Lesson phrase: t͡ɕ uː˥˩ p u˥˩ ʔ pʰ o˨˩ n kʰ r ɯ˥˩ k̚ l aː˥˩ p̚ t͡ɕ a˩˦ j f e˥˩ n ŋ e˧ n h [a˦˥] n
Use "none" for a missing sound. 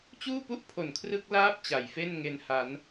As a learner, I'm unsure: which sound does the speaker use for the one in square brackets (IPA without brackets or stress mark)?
a˦˥